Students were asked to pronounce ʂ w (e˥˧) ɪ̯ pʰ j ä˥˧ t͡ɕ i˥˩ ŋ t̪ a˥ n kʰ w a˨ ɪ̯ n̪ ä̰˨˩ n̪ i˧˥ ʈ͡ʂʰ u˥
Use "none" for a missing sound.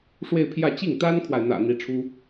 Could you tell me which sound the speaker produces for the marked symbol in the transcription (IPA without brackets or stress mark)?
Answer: e˥˧